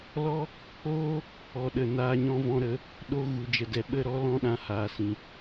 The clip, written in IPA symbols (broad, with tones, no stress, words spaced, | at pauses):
lɔ˦ | k͡poː˦ | ɔ˨ɗə˨ naː˧ɲɔ̃˧vɔ̃˧ɾə˨˦ | ɗo˧ ɣu˨d͡ʒə˨dɛ˨ ɓə˦˨ɾɔ˦ lɔ̃˦ɗã˧ haː˨ sĩ˨